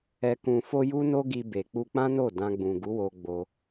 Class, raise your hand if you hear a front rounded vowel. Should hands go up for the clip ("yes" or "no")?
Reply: no